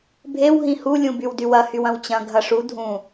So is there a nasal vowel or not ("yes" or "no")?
yes